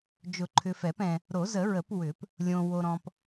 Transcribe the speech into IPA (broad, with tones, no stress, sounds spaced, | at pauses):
d͡ʒ ʊ˨˩˦ ǃʰ ʏ˨ f ɛ˨˩˦ p ɛ̃˨ | ɾ o˨˩˦ z ə˨˩˦ ɹ ə˨˩˦ p w ʏ˨˩˦ p | lʲ õ˨ w o˨ ɾ ɔ̃˨ p